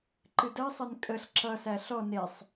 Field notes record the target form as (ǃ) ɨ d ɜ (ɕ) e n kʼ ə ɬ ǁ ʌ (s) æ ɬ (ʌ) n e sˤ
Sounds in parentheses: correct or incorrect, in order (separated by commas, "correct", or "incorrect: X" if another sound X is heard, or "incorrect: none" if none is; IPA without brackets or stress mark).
correct, incorrect: sˤ, correct, incorrect: ɔ